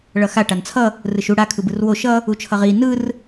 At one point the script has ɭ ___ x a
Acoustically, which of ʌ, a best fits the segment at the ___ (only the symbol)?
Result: ʌ